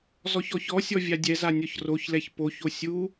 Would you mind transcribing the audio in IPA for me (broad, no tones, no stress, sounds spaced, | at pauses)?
z ɔ ç ɔ ç ɔ sʲ ɔ vʲ a dʲ ɛ z a nʲ ɔ ç r o ç l ɛ ç p o ç o sʲ u